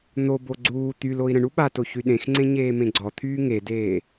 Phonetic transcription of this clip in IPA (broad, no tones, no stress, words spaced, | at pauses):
n̪obo ɡ͡ǀuː t̪yloi̯ ɾə̃ɳu ɓato çyɗẽxŋ͡ǀẽ ɲeːmẽɡ͡ǀɔt̪ʰyː ŋedeː